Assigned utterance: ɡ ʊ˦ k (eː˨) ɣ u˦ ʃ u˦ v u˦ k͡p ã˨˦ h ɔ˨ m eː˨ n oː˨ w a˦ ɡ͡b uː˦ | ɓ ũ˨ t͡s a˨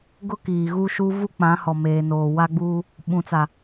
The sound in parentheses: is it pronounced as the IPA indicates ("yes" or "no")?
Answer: no